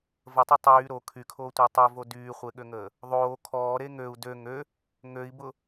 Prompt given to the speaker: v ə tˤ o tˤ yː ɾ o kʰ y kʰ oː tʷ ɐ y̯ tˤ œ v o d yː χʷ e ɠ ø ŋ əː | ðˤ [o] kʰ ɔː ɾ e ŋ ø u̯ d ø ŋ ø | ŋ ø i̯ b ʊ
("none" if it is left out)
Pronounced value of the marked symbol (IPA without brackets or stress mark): oː